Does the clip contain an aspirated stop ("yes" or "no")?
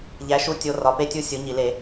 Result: no